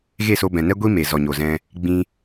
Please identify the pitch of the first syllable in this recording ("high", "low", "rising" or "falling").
falling